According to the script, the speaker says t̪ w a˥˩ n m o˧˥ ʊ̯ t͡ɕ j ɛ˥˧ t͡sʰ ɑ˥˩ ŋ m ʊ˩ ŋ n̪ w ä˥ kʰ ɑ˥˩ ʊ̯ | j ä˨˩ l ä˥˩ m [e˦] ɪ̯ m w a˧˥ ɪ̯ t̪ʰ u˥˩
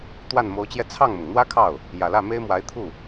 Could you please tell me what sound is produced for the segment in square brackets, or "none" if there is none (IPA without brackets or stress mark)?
e˥